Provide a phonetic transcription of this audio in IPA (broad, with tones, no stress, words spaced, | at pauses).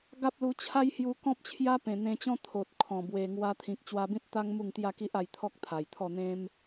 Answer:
ɡa˦p̚lu˧t͡ɕʰa˦j hju˧kɔ̃˦p̚t͡ɕʰja˦ pẽ˨˩n̪ẽ˧t͡ɕɔ̃˦ t̪ʰo˨t̚kʰɔ̃˨˩ bwe˨˩ŋwa˧t̪ʰĩ˨k̚ t͡ɕwa˧bĩ˦t̚ t̪a˦ŋ mu˥˧ŋt̪ja˥˧ki˦ʔ a˧jt̪ʰɔ˦k̚ t̪ʰa˨˩jt̪ʰɔ˥˧ n̪ẽ˦m